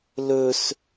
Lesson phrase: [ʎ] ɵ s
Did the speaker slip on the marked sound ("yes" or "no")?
yes